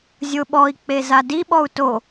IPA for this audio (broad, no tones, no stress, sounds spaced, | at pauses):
zʲ ʊ ɓ ɔ i̯ k͡p e z a d i ɓ ɔ u̯ t o